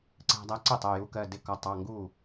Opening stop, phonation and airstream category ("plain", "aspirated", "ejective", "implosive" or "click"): click